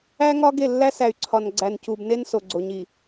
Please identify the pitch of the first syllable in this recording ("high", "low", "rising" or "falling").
high